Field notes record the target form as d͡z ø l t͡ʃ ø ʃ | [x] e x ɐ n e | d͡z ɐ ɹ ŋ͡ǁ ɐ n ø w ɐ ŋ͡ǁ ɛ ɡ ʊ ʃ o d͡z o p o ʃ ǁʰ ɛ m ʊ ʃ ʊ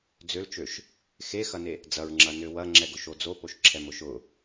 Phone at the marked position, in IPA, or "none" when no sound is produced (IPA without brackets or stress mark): x